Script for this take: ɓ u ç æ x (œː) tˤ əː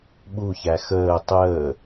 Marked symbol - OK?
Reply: no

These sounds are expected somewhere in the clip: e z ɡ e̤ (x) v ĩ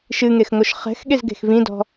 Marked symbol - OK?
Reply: yes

